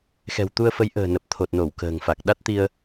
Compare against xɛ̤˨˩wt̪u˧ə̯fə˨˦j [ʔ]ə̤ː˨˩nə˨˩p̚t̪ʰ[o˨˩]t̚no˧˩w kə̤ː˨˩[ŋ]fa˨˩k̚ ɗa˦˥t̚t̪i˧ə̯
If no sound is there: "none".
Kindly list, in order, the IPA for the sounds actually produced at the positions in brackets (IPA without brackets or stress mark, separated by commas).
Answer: ʔ, o˨˩, ŋ